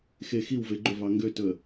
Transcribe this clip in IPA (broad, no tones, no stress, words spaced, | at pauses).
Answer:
xex iwve ɡ͡ǃɵvɑ ŋɡøtɵə̯